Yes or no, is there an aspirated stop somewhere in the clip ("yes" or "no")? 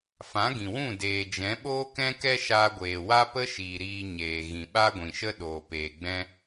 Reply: no